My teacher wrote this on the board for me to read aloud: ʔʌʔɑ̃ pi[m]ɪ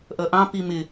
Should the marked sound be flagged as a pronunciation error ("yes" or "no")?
no